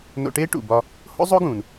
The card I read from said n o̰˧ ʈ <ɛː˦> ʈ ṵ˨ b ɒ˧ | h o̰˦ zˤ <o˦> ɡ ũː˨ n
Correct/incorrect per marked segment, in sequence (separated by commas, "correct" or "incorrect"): incorrect, correct